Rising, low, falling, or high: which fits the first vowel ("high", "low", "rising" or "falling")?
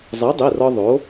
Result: rising